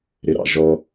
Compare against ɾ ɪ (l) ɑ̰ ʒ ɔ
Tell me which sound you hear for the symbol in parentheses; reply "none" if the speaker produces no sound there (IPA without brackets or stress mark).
ɾ